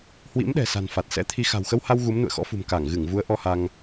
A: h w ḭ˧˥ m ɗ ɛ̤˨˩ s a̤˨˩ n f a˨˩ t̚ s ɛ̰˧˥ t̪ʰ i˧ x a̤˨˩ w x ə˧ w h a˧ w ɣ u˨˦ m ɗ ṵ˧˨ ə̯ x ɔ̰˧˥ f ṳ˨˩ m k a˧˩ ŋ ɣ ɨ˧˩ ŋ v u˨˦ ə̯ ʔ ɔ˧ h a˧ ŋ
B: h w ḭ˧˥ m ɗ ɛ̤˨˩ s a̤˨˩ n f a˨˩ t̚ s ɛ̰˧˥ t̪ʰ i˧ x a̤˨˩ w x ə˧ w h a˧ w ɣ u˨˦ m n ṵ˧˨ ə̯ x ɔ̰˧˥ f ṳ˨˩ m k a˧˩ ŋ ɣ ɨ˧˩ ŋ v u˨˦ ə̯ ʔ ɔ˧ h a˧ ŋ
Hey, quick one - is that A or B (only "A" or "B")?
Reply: B